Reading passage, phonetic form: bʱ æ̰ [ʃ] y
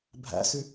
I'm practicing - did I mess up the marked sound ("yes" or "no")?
yes